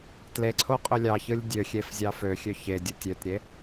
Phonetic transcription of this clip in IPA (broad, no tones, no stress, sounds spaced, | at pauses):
t l e ǀʰ o qʼ ø lʲ ɑ ç ɯ lʲ dʲ ø xʲ e f zʲ ɑ f ø xʲ ø ç e dʲ o tʲ ø t ɾʲ e